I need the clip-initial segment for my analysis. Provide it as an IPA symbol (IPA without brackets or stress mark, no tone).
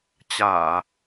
t͡ɕ